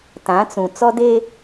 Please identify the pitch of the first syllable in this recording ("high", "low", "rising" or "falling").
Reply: rising